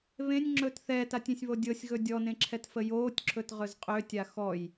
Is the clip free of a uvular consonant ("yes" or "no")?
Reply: no